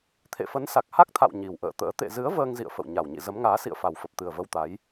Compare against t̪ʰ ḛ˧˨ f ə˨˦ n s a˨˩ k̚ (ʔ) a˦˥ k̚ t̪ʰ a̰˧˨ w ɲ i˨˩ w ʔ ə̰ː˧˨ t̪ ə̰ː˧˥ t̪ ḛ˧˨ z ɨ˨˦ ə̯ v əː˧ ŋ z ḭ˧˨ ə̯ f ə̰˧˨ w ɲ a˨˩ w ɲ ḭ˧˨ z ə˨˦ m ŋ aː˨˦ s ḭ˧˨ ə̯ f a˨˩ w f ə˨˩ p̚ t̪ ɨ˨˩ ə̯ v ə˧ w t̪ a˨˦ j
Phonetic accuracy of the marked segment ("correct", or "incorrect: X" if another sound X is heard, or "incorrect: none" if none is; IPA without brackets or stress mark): incorrect: h